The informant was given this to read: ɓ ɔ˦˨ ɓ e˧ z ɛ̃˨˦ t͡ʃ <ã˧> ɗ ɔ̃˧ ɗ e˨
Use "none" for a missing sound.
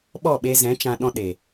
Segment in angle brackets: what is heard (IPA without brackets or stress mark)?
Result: ã˧